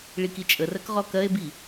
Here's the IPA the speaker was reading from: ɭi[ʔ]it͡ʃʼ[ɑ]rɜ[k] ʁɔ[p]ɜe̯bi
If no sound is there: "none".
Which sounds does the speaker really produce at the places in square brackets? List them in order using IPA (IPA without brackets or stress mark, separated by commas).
k, ə, k, k